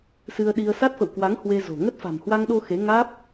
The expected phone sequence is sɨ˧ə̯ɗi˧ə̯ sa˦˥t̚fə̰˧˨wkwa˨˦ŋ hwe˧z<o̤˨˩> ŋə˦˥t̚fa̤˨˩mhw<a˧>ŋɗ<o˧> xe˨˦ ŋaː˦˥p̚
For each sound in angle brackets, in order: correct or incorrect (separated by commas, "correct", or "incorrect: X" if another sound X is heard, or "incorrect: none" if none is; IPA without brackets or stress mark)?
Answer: correct, correct, correct